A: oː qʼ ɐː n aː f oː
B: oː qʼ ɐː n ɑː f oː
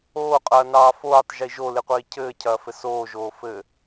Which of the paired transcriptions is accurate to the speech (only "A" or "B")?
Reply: B